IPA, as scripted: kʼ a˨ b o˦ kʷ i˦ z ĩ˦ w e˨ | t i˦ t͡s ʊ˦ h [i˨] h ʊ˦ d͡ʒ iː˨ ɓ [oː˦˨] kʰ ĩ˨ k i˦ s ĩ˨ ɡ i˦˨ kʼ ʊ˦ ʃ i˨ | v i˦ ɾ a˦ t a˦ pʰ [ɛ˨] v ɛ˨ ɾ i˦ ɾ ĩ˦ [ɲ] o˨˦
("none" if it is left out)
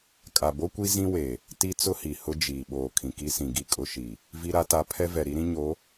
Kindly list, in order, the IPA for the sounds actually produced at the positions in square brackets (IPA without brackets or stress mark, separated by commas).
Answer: i˨, oː˨, ɛ˦, ɲ